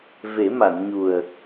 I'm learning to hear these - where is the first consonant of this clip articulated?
lips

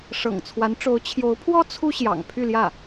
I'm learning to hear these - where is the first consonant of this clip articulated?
retroflex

